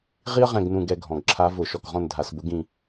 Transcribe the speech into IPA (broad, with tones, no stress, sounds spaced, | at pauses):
ʁ i˥ ə̯ ʁ ɛ̃˦˨ ɡ n ũ˦˨ ɡ ɛ˦˨ ɡʱ ɔ̃˨˩ ɡ ǁʰ a˧˥ v ʊ˧˩˧ ʃ ɔ˨˩ k ʁ ɔ̃˦˨ n dʱ a˧˩˧ s b ʊ˧˥ ɡ ĩ˦˨